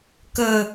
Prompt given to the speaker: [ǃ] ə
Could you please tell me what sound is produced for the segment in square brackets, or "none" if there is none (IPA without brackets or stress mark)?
k